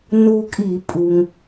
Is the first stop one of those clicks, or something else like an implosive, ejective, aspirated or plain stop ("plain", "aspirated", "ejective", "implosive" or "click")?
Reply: ejective